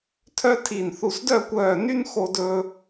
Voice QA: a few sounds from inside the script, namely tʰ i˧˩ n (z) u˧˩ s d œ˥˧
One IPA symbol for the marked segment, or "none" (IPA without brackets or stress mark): θ